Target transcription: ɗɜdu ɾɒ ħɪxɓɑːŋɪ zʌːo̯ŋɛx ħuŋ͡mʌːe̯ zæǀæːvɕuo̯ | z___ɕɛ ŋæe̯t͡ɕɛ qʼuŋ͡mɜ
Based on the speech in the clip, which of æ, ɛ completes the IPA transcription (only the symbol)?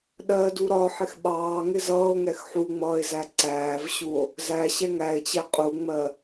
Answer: æ